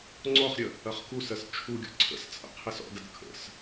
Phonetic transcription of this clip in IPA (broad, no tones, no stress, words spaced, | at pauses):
ŋ͡ǀɔχɾʲə | ɐχkusɜs t͡ʃʰuɡʲɔ̰ ǀʰə̰st͡sʼə̰ qʰɪsɔ̰dɐd kʰə̰s